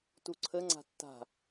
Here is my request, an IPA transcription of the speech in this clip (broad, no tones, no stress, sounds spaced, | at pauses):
t u ǀʰ ə ŋ͡ǀ a̤ tː a̤